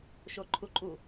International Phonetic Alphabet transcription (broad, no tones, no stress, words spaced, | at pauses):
ʃoǃʰuǃʼu